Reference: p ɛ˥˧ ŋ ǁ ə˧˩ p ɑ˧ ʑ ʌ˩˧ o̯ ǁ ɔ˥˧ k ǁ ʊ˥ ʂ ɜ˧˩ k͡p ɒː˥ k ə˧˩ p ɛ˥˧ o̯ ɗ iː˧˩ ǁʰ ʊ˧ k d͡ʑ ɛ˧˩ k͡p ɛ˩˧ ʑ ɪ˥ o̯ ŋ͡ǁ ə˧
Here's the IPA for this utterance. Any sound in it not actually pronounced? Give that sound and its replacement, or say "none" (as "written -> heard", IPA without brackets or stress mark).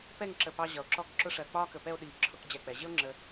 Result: none